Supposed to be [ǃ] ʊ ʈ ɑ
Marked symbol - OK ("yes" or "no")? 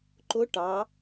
yes